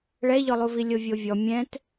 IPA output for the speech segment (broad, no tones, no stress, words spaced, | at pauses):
ɭɛʎɔlˠuvi lʲovʲovʲɔ mʲɛ̃t